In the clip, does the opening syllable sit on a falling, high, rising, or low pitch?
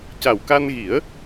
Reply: low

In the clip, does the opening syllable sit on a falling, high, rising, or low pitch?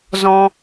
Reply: high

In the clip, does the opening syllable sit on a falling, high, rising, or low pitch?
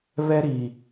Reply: high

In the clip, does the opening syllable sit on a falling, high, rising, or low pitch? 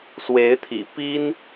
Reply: rising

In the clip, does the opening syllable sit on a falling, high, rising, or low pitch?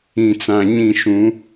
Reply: low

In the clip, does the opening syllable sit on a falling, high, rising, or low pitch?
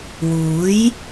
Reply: rising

